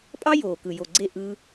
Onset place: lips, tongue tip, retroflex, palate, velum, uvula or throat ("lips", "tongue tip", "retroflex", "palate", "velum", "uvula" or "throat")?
lips